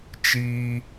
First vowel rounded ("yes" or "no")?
no